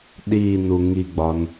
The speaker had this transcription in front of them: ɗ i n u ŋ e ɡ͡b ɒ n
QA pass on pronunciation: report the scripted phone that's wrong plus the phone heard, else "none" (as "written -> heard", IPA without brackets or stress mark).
e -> i